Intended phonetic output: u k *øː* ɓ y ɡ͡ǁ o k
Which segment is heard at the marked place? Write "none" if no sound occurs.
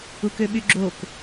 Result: ø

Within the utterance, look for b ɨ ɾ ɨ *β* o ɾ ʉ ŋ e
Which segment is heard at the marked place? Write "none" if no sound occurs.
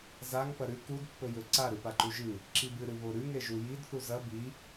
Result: β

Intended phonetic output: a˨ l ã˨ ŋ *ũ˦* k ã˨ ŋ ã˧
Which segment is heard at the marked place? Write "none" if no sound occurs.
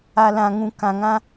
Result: ũ˨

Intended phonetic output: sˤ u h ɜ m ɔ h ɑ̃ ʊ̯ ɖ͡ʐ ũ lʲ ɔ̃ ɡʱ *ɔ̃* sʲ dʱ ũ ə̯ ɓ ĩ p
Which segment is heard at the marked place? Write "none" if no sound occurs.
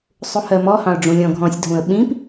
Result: ɔ̃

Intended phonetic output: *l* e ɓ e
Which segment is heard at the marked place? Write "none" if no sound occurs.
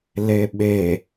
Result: l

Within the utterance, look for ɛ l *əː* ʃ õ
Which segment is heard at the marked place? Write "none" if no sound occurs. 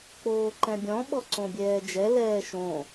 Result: ɛː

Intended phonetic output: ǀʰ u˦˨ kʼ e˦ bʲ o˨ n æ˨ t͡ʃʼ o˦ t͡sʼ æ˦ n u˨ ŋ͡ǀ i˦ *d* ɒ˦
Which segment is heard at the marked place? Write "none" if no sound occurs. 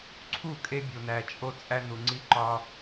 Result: ǃ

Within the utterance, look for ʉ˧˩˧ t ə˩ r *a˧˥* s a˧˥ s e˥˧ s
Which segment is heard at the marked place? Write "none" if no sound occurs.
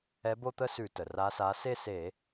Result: a˧˥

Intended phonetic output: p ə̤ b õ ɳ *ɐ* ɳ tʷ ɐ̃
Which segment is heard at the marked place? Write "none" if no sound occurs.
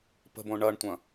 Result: ɐ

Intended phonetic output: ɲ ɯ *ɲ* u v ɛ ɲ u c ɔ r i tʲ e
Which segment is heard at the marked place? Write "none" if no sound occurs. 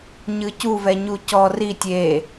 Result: c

